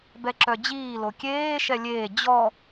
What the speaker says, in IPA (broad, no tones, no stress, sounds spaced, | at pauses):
b ɛ ǁ œ d͡ʑ iː l o kʲ eː ʃ ɛ lʲ eː d͡ʑ ɔ